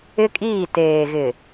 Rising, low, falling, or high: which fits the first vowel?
high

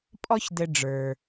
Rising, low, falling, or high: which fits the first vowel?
high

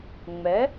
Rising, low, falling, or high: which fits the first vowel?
rising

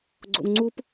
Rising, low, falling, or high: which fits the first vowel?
high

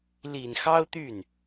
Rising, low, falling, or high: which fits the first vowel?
low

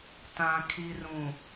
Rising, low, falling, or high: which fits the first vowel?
low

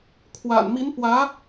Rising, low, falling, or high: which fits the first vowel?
low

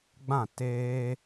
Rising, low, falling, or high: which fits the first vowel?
falling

